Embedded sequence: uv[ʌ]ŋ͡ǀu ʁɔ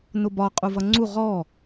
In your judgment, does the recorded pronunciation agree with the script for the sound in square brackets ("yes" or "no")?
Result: yes